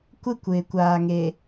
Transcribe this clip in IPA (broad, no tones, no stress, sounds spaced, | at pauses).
kʷ ɪ kʷ ɪː kʷ aː ŋ e